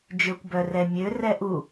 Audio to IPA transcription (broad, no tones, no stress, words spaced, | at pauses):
d͡ʒøkʷbœrɛmʲø rɛʔu